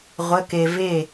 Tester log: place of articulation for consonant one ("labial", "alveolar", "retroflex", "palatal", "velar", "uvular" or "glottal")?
uvular